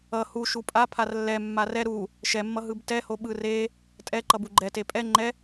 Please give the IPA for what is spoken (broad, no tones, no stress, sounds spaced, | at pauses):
ʌ h u ʃ u pʼ a pʰ a r lː ɛ mː a r ɛ ɾ u | ʃ ɛ mː ʌ ɦ ɯ b t ɛ h o ɓ ɯ r e | tʼ ɛ ǃ ʌ b u ɡ͡ǃ ɛ t e pʼ ɛ ŋ͡ǃ ɛ